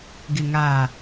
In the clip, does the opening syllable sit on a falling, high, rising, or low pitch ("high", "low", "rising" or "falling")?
low